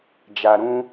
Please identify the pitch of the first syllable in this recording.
low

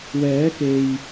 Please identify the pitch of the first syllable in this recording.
rising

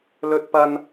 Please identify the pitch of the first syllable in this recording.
high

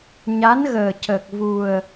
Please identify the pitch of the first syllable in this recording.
rising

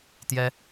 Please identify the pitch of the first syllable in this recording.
high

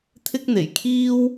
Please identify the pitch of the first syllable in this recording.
high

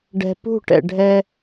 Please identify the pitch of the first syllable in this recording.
low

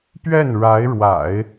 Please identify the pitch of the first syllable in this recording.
falling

